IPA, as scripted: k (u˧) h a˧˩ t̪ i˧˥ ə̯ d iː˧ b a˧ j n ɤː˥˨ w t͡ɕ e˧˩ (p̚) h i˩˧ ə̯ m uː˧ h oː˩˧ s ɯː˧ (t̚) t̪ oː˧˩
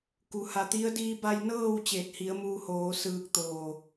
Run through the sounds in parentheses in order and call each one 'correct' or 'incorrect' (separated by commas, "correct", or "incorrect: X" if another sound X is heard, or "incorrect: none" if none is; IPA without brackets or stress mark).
incorrect: u˩, incorrect: t̚, incorrect: k̚